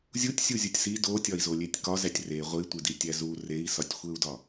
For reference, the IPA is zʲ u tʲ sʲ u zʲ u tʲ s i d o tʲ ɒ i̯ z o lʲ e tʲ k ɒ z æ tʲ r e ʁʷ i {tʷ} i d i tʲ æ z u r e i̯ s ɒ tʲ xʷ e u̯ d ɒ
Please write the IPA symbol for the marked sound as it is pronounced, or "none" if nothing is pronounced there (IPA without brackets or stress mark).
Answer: tʷ